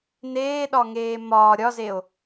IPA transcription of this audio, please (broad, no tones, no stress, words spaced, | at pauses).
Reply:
neːɗɒŋeː mɒː ɾʲɒzeo̯